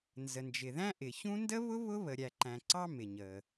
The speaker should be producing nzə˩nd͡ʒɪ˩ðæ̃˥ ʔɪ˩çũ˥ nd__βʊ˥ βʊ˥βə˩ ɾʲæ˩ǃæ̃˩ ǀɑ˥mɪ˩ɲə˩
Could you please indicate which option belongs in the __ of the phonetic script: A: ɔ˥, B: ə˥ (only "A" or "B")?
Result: B